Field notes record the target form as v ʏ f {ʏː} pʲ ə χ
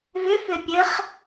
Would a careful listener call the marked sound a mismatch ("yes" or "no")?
yes